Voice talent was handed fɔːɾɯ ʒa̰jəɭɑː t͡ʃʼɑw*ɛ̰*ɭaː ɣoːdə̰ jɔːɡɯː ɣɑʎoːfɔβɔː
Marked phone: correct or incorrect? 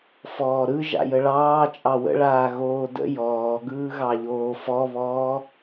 incorrect